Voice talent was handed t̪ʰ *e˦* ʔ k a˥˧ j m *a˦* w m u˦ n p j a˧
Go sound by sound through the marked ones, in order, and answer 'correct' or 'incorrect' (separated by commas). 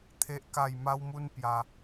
correct, correct